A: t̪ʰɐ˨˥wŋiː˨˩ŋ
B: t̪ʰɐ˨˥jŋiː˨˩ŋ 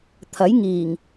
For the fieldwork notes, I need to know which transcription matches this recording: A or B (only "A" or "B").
B